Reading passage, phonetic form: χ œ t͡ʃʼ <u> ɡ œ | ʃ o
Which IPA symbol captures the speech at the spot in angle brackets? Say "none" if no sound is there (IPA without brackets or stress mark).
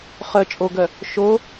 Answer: o